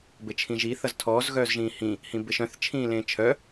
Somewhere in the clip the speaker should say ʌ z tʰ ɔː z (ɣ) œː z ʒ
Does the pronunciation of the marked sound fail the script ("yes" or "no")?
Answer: no